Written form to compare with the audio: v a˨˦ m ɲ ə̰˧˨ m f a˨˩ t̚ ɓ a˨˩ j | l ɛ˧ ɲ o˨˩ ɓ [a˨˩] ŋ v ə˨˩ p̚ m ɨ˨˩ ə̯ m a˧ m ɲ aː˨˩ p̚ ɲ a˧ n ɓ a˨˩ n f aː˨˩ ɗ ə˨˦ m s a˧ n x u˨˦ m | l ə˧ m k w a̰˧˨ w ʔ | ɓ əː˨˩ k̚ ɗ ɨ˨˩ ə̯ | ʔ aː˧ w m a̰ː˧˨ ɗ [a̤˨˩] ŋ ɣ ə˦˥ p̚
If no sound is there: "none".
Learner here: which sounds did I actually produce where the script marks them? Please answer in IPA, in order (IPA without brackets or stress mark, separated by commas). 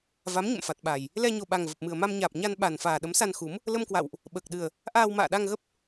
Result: a˨˩, a˧